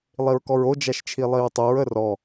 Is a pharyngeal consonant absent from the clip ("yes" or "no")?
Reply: yes